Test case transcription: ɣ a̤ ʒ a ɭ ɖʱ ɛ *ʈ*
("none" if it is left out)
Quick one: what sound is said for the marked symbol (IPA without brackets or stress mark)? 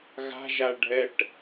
ʈ